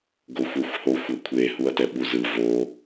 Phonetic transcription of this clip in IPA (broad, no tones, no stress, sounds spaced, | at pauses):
ɡ o xʷ ɛ xʷ h o xʷ ʌ kʷʰ e h u ɐ̯ t ɛ ɓ u z ɯ v o